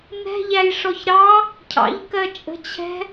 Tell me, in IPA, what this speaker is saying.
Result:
n ɛ̤ ʎ æ j ʂ ɔ ç ɾ ɑ | cʰ ɑ̰ ʎ k ɜ t͡ʃʼ ə̤ t͡ɕʰ ɛ̤

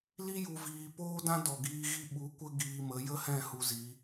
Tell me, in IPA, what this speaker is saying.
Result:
l i˦ j u˨ v iː˨ p oː˦ d ã˦ d ɔ˨ ɡ iː˧ ɣ i˦ ɓ u˨˦ kʷ ə˦ ɡ iː˧ m ə˨˦ j ə˦ h ɛ̃˦˨ h u˧ z i˨˦

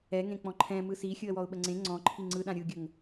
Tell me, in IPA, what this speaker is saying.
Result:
ɛ ŋ ẽ k͡p ɔ̃ ǃʰ ɛ̃ m ɯ s i xʲ ɯ ə̯ w ɔ ʊ̯ ɓ ə ŋ͡ǀ ẽ ŋ͡ǀ ɔ̃ ǃʰ i ŋ͡ǀ ɯ ɗ ã ɾʲ ɯ ɡʲ ə ŋ

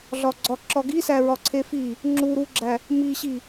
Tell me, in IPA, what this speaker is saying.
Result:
ɮ ɒ ɡ͡ǀ ɒ ǁ ɒ ɡ i s æ ɹ ɒ ǀʰ e f i | ŋ͡ǁ u ɾ u ɡ͡ǁ æ | m i ɕ i

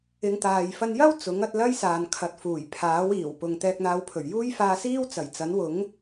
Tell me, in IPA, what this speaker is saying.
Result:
ɪ˨˧ ŋ t̪ aː˨ j f ɐ˧ n j ɐ˥ w t͡s ʊ˨˥ ŋ ɐ˨˥ t̚ l ɐ˥ j s aː˨ n kʰ ɐ˨˥ t̚ f uː˨˩ j pʰ aː˨˥ w iː˨˩ w p ʊ˨ ŋ t̪ ɛː˧ k̚ n̪ aː˧ w pʰ ɵ˨˩ ɥ j uː˥ j f aː˧ s iː˥ w t͡s ɐ˨˩ j t͡s ɐ˨˥ n w ʊ˨˥ ŋ

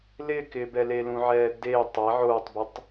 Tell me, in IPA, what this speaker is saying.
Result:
l ɪː k ɪː b ɛ l eː l ũ ʕ ɛː d e tˤ ɛ ʕ oː tˤ b ɪ tˤ

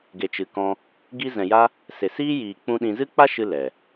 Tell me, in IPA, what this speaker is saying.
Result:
ɡ e˨ t͡ʃ ɨ˨ k ɔ̃˧ | ɡ i˧ z ɛ̃˨ j a˦ | s e˨ s iː˦ j iː˨ k͡p ũ˧ ɗ ĩ˧ z ɨ˦ k͡p a˦ ʃ ɨ˦ l ɛ˨

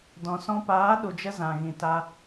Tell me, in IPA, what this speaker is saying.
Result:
d ɔ̃˨ s ɔ̃˧ p aː˨˦ ɗ u˨ d͡ʒ ə˧ z ã˨ ɣ ĩ˨ t a˧

